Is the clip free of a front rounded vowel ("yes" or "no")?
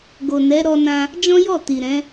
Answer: yes